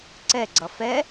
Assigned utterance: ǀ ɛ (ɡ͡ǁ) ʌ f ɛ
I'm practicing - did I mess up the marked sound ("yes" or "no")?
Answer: yes